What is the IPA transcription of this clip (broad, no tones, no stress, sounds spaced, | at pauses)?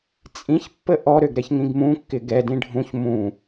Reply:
t͡sʼ ĩ ç pː ə ʔ ɔ ɾ ø ɡ ɾ ɛ ç ŋ ĩ ɡ m ũ kː ɪ ɡ ɛ d ĩ ɖʱ ũ ç m ũ